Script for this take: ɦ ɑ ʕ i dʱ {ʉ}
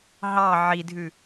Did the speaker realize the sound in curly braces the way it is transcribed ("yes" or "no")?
yes